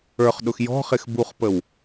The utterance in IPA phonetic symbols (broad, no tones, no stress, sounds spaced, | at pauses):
ə˞ χ ɗ ʊ x j ɔ̤ χ ɪ x b u χ p ə w